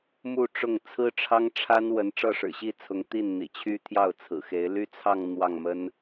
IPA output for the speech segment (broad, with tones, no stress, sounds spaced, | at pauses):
m u˥˧ ʈ͡ʂ ʊ˥˩ ŋ t͡sʰ ɹ̩˥ ʈ͡ʂʰ ɑ˥ ŋ ʈ͡ʂʰ a˥ n w ə˧˥ n ʈ͡ʂ ɤ˥˩ ʂ ɻ̩˨˩ ɕ i˥˩ t͡sʰ ʊ˧˥ ŋ t̪ i˥˩ n n̪ ḭ˨˩ t͡ɕʰ y˥ t̪ʰ j ɑ˥˩ ʊ̯ t͡sʰ ɹ̩˨˩ x e˧˥ ɪ̯ l y˥ t͡sʰ ɑ˥˧ ŋ n̪ w ɑ˥˩ ŋ m ə˥ n